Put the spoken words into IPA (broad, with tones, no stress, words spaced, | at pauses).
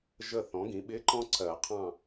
ʒə˦˨θɔ̃˩˥ɡĩ˩˥ ɓɪ˧˥˧ǃɔ̃˥ǀɜ˨˩˦qʰɑ̃˦˨